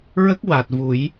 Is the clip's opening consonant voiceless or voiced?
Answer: voiced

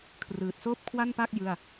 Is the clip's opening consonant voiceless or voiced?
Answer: voiceless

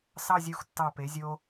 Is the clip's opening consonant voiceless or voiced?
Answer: voiceless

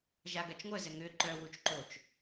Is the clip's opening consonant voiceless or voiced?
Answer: voiced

